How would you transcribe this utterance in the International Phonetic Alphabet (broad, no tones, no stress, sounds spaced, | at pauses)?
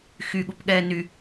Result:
x y ɠ u p ɠ ɛː n y